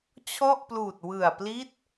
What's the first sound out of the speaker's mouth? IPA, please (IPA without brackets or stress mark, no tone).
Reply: t͡ɕʰ